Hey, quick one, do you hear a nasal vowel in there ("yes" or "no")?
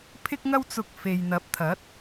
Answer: no